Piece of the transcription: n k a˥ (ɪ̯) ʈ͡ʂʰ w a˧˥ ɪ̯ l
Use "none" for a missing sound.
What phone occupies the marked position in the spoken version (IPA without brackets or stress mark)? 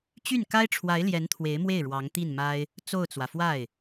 ɪ̯